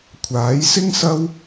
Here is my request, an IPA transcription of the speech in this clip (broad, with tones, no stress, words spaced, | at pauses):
kʷʰaː˨˥jsɪ˥ŋsɐ˥w